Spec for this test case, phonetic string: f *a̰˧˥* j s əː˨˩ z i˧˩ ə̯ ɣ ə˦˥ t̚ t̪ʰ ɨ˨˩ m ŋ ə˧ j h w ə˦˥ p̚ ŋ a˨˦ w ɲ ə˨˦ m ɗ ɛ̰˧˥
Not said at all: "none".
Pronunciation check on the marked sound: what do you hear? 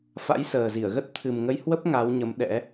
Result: a̰˧˥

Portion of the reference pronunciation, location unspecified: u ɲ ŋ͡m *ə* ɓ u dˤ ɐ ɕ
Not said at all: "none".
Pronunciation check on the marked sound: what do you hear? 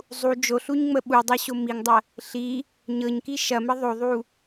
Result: ə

